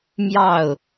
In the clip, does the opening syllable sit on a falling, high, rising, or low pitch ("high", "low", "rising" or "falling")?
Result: falling